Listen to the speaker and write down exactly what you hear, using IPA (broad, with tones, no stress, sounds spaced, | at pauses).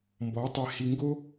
m b ɔ˨˦ tˤ e˧ h i˨ ŋ ɡ o˦